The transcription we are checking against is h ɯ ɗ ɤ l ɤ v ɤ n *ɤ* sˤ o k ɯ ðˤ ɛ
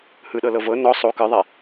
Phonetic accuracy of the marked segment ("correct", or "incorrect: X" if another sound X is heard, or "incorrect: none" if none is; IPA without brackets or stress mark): incorrect: ɔ